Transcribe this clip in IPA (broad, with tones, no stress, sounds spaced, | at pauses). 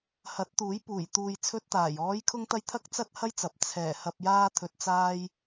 h ɐ˨˥ t̚ t̪ uː˨˥ j p uː˨˩ j t̪ uː˨ j t͡sʰ ɵ˧ t̚ t̪ aː˨˩ j ɔː˨˧ j kʰ ʊ˧ ŋ t̪ ɐ˧ j t̪ʰ ɐ˥ k̚ t͡s ɐ˥ t̚ h ɐ˥ j t͡s ɐ˨ p̚ t͡sʰ ɛː˨˩ h ɐ˧ p̚ j aː˥ t̪ʰ ɵ˧ t̚ t͡s aː˥ j